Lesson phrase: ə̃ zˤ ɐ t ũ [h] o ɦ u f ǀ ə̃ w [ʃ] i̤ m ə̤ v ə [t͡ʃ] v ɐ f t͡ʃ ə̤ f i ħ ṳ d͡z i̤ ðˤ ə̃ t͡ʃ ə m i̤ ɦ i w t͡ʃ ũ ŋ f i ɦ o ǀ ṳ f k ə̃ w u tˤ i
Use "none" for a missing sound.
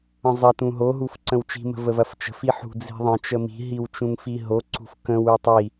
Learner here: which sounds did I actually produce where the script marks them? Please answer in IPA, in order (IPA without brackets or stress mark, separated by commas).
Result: ɦ, t͡ʃ, none